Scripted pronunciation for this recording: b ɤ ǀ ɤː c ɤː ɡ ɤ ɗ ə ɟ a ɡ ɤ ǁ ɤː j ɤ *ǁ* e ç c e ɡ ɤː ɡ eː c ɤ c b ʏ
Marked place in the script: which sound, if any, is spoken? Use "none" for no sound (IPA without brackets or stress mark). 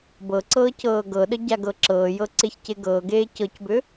ǀ